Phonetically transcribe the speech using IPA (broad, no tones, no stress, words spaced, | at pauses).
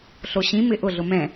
ɬoɕĩmɪ ʔʊɮʊ mɛ̃